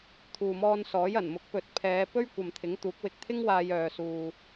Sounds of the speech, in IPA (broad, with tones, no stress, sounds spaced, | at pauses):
t̪ʰ uː˨ m ɔː˧ n s ɔː˨˥ j ɐ˨˩ n m ʊ˨˥ k̚ p ɵ˨ t̚ pʰ ɛː˨˧ p ɵ˥ ɥ kʷ ɐ˨ m t̪ʰ ɪ˨˥ ŋ t̪ uː˨˥ k̚ w ɪ˧ k̚ t̪ʰ ɪ˥ ŋ w aː˧ j œː˨ s uː˨